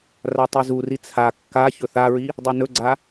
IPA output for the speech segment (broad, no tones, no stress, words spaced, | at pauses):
ratˤizuri t͡sʰa kːaçɵ θaɹi | dˤinɵɡ͡ǀa